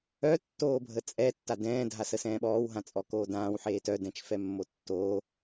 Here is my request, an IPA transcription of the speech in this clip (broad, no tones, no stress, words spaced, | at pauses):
œ tːoːbʱət͡sʼɛ tːadɛ̃ː dʱasəsɛ̃ːɓɔːw ɦãt͡sʼɔkoːdãːw ħeːtœ dɛ̃t͡ʃfɛmːotːoː